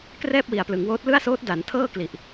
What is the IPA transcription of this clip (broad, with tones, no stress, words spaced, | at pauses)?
krɛː˥˩p̚wi˨˩a̯plɯ˩˦ŋwoː˦˥t̚ lɯ˥˩a̯soː˦˥t̚ da˩˦ntʰɤː˥˩kli˨˩ʔ